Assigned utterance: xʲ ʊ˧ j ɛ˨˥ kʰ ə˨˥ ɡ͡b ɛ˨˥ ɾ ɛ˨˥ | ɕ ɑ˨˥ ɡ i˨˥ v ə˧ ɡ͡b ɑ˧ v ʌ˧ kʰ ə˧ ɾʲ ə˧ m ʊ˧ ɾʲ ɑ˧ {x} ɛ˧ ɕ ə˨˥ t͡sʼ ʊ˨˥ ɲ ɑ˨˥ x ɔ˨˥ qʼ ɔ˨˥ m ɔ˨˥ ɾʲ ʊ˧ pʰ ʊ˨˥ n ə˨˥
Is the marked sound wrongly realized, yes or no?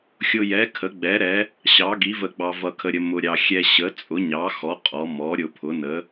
yes